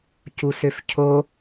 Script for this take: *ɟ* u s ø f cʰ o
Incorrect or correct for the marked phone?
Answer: incorrect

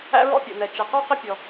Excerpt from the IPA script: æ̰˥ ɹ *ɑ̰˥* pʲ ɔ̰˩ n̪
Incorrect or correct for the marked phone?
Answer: incorrect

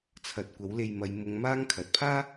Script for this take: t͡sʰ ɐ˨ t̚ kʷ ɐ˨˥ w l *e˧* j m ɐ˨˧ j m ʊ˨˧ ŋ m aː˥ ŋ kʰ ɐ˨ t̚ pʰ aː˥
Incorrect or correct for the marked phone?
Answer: correct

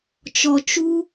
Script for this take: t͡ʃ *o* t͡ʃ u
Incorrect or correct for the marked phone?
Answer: incorrect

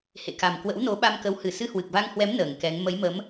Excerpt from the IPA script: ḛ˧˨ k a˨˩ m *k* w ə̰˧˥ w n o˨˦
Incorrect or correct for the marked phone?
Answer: correct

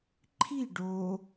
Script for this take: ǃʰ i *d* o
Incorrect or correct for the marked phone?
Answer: incorrect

